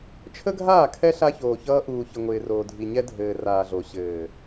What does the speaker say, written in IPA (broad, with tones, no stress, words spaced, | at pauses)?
t͡ʃʰə˦ɡʱaː˦˨kʰɛ˦ ɬa˦çoː˨çʌː˦ ʔuː˨çɘ˨ ŋʷɪː˨ roː˨dʱi˨ɲɛ˦ dʱɘː˨raː˨ɮo˨ ɕɘː˨